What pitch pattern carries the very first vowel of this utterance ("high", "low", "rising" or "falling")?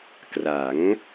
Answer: rising